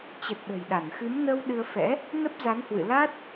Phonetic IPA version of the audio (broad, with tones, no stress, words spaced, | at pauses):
t͡ɕə˨˩t̚ɗə̤˨˩j ɗa˧˩nxɨ˨˦mnə˧w ɗɨ˧ə̯fɛ̰˧˥ | nə˦˥p̚za˨˦nhwɨ̰˧˨ la˦˥t̚